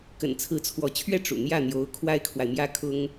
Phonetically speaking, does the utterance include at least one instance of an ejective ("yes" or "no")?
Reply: no